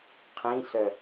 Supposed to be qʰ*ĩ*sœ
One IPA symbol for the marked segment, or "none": ĩ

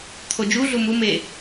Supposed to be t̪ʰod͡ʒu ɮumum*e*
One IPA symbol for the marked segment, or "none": e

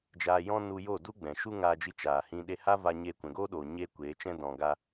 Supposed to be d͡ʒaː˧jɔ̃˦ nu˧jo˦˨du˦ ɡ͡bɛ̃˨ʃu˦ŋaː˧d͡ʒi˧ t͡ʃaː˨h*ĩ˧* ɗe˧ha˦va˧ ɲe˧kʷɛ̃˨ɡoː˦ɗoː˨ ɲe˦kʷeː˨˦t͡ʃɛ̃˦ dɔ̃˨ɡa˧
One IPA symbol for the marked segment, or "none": ĩ˧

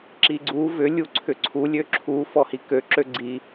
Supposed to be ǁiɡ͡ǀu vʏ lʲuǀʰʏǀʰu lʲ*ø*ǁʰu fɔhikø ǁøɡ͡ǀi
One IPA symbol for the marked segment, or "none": ø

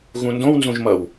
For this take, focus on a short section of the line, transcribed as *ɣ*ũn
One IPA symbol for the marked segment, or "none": ɣ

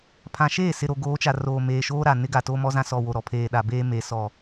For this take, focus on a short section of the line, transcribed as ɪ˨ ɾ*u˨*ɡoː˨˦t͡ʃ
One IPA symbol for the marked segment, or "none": o˨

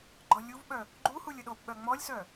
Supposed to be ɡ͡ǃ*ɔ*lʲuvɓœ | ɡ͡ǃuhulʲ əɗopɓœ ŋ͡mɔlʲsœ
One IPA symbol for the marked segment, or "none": ɔ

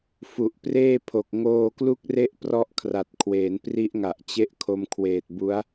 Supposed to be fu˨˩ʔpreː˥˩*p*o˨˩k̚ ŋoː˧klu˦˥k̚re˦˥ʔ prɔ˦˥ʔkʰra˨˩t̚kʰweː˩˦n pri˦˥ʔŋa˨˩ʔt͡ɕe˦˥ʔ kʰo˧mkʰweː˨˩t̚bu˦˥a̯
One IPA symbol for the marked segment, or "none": pʰ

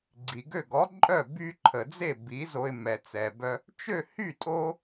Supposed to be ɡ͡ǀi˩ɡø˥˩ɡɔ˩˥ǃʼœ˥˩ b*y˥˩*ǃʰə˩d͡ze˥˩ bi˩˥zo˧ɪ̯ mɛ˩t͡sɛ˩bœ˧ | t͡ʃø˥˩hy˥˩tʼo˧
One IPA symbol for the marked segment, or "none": y˧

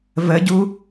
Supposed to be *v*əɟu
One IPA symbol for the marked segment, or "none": v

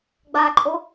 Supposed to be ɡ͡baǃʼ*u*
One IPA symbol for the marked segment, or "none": o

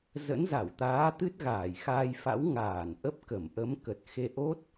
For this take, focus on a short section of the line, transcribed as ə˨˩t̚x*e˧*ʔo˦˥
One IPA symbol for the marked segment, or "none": e˧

